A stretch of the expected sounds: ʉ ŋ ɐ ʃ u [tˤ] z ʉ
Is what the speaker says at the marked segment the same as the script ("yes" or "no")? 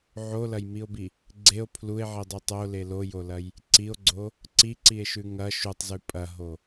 yes